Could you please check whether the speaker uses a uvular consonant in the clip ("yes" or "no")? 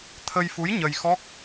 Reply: no